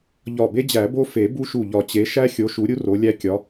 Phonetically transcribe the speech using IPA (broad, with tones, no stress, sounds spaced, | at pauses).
ʎ ɒ˧˩ b e˦ d͡ʑ æ˨˩˦ b o˦ f e˨˩˦ b u˦ ʃ u˧˩ ʎ ɒ˧˩ t͡ɕ e˨˦ ʃ æ˦ xʲ o˨˦ ʃ u˨˦ ɾʲ u˦ r o˨˦ lʲ æ˦ kʲ ɒ˨˦